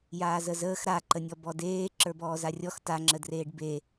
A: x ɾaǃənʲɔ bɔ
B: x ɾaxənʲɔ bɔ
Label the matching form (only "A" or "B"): A